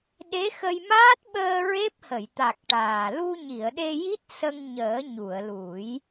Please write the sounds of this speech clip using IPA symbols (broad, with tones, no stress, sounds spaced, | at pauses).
ɗ e˧˥ x ə˧ j m aː˦˥ t̚ ɓ əː˧ ɹ e˦˥ p̚ h ə˨˩˨ j t̪ a˨˩ k̚ ʈ aː˨˩ l u˧ ɲ i˨˩˨ ə̯ ɗ e˧ j i˦˥ t̚ s ə˧ ŋ ɲ əː˨˩˦ ɲ u˨˩˨ ə̯ l u˨˩˦ j